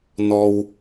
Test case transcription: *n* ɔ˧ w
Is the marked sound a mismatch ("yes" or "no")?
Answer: no